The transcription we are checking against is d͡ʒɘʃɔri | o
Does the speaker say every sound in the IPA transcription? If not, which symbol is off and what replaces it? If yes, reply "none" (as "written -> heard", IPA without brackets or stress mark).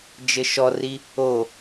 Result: none